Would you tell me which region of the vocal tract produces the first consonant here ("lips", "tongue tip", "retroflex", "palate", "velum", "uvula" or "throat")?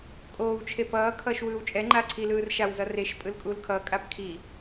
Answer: velum